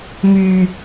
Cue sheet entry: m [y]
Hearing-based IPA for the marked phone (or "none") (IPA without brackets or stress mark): y